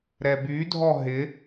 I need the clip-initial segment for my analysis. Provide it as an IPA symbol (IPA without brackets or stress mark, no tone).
ɾ